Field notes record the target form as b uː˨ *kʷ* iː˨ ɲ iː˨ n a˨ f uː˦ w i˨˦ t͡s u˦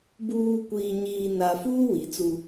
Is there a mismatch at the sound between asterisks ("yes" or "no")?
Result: no